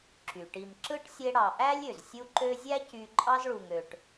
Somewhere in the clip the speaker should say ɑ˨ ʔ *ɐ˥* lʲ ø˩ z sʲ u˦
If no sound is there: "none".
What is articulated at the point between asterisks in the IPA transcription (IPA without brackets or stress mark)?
æ˥